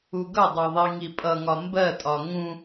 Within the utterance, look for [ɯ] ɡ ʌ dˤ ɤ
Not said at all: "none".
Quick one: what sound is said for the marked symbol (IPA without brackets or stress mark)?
u